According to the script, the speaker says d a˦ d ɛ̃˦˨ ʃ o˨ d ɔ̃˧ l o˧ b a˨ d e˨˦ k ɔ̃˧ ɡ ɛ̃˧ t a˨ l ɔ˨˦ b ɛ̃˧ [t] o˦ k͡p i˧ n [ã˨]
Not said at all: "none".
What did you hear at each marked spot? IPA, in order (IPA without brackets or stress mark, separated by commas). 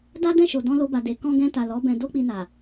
d, a˨